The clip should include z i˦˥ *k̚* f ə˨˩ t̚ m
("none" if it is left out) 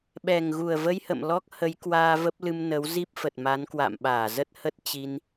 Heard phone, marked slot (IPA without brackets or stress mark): p̚